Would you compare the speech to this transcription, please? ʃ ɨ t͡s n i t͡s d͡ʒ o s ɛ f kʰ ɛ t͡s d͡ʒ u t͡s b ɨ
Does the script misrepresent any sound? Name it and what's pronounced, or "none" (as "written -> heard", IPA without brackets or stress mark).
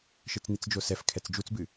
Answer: none